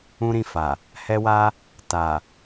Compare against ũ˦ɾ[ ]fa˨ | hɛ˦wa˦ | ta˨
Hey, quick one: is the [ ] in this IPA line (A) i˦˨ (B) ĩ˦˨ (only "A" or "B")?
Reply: B